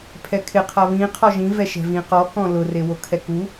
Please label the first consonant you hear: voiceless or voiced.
voiceless